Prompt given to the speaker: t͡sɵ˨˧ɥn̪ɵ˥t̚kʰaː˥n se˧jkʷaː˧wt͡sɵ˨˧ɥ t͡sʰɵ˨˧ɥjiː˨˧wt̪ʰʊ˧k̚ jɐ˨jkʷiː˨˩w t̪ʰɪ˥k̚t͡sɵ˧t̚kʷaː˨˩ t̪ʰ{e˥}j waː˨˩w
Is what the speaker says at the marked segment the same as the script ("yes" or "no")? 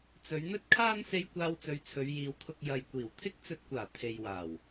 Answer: no